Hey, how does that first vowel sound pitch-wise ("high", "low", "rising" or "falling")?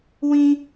high